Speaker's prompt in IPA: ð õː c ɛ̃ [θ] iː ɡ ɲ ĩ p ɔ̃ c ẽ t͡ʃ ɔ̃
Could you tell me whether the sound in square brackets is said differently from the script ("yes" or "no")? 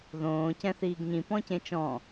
no